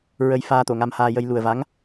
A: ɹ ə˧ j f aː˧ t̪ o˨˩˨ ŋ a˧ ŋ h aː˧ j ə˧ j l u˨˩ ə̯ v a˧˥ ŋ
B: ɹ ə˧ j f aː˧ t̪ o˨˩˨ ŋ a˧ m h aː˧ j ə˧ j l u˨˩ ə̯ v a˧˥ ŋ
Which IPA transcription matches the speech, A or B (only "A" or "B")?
B